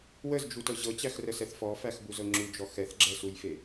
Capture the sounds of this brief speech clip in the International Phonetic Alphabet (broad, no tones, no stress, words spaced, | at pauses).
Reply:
wəzd͡ʒutɤ ʑɤt͡ɕæxrəsɛθ fɔfæxbuzɤ ŋ͡ǁud͡ʒɔ xɛθɡ͡ǁɛsujfe